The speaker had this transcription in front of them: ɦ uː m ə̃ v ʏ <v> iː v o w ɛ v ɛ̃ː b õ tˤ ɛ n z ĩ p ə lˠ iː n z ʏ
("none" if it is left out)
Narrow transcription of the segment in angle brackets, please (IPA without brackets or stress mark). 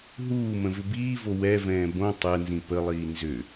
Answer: b